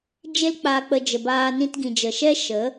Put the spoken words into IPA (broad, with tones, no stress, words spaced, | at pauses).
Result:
d͡ʒe˧lk͡paː˨k͡pə˨ d͡ʒə˨baː˧ nĩ˧tɡĩ˨d͡ʒə˨ʃɛ˦ ʃə˨˦